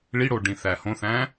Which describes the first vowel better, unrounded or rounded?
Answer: unrounded